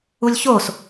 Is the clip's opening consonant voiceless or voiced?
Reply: voiced